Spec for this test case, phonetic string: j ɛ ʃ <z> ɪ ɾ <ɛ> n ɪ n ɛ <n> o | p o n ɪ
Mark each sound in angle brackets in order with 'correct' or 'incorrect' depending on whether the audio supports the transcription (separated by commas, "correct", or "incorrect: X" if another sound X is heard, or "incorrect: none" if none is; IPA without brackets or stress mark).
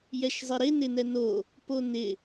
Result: incorrect: zˤ, incorrect: ɪ, correct